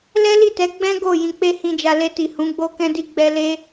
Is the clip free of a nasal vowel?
no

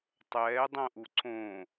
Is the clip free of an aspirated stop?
yes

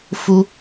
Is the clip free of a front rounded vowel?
yes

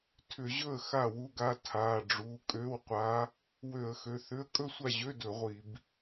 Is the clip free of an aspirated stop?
no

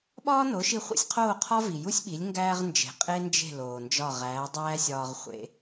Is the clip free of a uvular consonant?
no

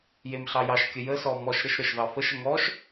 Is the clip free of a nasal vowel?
yes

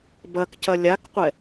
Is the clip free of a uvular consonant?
no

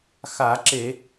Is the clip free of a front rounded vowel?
yes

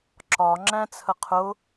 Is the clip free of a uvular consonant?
no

